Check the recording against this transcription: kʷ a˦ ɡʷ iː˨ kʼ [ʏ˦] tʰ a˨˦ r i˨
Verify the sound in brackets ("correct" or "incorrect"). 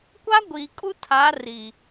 incorrect